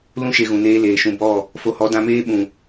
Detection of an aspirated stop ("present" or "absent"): absent